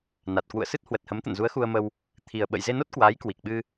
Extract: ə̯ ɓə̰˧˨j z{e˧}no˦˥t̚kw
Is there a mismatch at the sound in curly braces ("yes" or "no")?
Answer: no